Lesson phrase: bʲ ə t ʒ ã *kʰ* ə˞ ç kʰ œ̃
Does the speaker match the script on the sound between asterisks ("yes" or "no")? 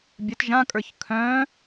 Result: no